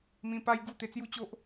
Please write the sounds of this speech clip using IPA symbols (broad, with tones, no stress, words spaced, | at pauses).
mĩ˧pa˦jɡu˥˧ t̪e˧t͡sju˦t͡ɕo˦ʔ